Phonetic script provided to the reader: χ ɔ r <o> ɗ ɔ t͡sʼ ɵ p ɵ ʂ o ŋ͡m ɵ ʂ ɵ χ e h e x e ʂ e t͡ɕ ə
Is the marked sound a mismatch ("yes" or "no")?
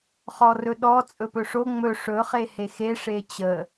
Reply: yes